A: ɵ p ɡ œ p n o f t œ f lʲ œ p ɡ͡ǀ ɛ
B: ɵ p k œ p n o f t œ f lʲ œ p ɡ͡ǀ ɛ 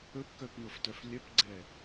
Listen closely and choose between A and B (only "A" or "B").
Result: B